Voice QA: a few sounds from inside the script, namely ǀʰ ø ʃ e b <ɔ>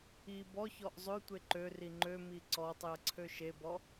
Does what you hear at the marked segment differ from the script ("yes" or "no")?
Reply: no